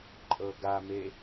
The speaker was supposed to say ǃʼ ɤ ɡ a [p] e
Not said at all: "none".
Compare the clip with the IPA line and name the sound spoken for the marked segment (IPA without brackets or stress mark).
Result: m